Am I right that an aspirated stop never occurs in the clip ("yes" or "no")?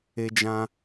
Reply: yes